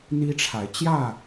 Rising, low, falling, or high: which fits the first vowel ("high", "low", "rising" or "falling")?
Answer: high